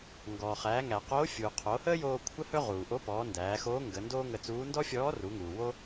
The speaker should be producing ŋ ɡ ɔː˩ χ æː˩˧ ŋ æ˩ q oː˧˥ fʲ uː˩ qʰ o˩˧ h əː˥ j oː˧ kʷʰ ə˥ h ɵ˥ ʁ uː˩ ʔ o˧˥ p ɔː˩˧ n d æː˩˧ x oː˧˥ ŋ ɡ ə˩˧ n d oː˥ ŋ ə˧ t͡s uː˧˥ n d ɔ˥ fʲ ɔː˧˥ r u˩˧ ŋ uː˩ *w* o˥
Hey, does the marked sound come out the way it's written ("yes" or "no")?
yes